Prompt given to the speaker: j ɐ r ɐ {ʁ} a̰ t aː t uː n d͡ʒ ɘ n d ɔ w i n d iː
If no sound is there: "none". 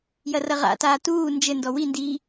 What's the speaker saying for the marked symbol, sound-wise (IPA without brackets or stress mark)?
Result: ʁ